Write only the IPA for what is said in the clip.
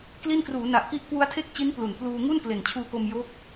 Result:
kli˥˩n kruː˩˦ na˨˩ʔki˦˥ʔ kwu˦˥a̯tʰe˥˩k̚t͡ɕi˦˥n plu˨˩n pluː˧ ŋu˥˩nkle˨˩nt͡ɕʰuː˧ko˧m jo˦˥k̚

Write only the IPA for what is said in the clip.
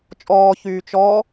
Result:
t͡ʃʼɔː çyːt͡ʃɔ

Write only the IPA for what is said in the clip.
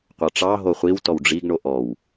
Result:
qʷɑʈ͡ʂɑɦo χʷiw tɔwɖ͡ʐiɡɳo ʔɔw

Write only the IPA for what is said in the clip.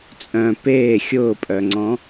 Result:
t͡sʼœ̃ peː xʲʊːpʼœŋ͡ǀɔ̃

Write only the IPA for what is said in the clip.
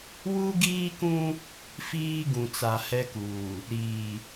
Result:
wu˦ɡiː˦kũ˦ | fiː˦ ɡũ˨t͡sa˨hɛ˦kuː˨ | ɾiː˨

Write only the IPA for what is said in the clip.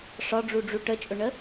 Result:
ʂɒɖ͡ʐuɖ͡ʐu ʈət͡ʃʼʊɳə

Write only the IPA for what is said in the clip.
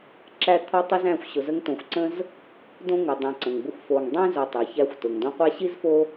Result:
ǁæ˦ t̪ʰɒ˦tˤi˦z æ̃˦xʷ ɕʊ˨zə˦ŋtõ˨xʷǀə̃˥z | dõ˥ŋʊ˩ dˤã˨ǀə̃˩ŋbʊ˦xʷ fo˨ŋ dˤĩ˥ zo˨tˤa˩çæ˦xʷ tʊ˩ŋdõ˦qʷæ˥ ɕi˥zfo˦

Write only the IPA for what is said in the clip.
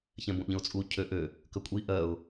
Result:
çɛ̃bõʔʎə̃ʊ̯t͡sʼu cʰøʔø | kəkʷʼi ʔɜʊ̯

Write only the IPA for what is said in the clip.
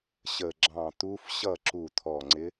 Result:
ɕə˧˩ ɡ͡ǁɑ̃˧˩ t̪u˧˥f ɕʌ˥˨ ǁu˧˩t̪ʰɔ˧˩ŋ͡ǀɪ˧˥

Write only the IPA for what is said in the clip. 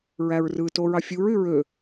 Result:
ɹæɹrɯto ɹɑfʲuɹy ɹø

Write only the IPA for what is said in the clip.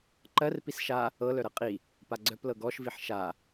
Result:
ǃɜr pisʃa | ɤlœ ɾɤqʼi | paɡ͡ǀœplɤ ɡɔʃviħ ʃa

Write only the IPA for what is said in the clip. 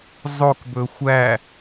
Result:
zˤok bɵxʷæ

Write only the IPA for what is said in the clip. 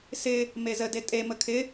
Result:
sɪ | mezəde tʼemə kʰɪ

